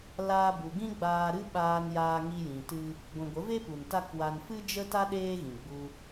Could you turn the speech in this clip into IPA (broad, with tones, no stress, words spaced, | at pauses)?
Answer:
laː˧bu˨ɡĩ˦ ɡ͡baː˧ɾɨ˦ ɓaː˧njaː˧ ŋi˧jĩ˨tɨ˧ | ɡʷĩ˨ɡʷə˨˦ve˦pu˨n ta˦kwa˧n fɨ˦d͡ʒə˦ta˦ ɗeː˦ɣĩ˨ɡ͡bu˧